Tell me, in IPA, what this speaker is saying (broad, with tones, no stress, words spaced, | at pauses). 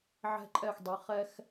ʕɛ̤˧ǃʼɛ˧˩xdˤi˩˧ χɛ˧x